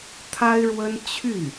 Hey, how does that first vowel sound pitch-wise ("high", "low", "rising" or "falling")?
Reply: high